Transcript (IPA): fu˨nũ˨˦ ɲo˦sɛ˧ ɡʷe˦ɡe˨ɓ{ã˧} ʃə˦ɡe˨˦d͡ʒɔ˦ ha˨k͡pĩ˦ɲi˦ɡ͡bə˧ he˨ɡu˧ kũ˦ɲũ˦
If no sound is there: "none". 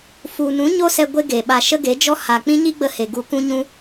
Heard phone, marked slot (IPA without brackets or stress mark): a˧